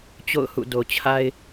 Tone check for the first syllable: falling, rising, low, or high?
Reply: falling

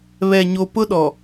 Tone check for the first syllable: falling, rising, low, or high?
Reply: low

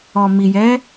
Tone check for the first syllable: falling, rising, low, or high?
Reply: low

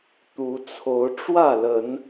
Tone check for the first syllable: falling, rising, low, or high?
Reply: rising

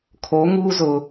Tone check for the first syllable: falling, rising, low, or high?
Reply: rising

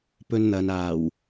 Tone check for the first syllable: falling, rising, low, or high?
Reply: high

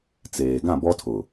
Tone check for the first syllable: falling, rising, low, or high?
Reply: low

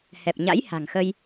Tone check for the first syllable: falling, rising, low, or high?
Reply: low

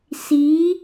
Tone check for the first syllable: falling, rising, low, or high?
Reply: rising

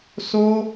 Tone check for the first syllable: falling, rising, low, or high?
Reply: high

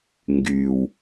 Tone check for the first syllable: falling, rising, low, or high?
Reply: low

